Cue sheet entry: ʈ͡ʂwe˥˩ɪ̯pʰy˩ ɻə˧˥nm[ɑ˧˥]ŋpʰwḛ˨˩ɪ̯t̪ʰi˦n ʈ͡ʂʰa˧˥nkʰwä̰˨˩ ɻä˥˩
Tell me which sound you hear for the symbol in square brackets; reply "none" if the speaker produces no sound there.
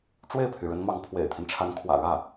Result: ɑ˧˥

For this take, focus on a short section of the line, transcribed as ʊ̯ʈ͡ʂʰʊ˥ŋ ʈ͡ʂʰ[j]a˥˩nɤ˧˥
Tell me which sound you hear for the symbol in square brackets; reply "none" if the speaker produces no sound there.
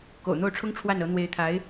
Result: w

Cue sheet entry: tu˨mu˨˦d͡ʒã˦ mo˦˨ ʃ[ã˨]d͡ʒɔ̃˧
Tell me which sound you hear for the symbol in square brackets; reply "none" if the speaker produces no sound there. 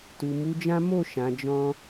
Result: ã˨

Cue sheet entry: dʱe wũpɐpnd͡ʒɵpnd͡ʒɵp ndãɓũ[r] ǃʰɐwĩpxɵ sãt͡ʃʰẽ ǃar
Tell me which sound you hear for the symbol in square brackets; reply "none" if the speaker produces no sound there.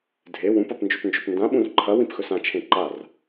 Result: r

